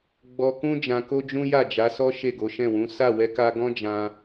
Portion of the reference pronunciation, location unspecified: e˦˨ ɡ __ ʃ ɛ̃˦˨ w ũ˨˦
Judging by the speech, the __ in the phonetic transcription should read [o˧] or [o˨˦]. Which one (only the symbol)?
o˨˦